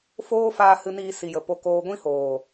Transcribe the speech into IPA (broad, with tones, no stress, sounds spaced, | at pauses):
f oː˦ f aː˧ h ɨ˧ n iː˧ s i˨ j ə˨ p o˨ k oː˨ ɡʷ ĩ˧ h oː˨